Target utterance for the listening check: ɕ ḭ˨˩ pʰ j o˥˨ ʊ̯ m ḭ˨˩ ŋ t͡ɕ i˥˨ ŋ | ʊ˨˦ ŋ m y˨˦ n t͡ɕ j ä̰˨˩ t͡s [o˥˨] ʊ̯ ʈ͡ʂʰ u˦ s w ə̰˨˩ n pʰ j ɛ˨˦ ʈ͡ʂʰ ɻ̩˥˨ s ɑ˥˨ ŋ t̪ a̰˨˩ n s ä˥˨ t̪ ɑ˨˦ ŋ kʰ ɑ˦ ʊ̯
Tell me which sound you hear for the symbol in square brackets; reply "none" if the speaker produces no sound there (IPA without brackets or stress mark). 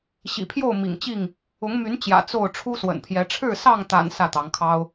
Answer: o˥˨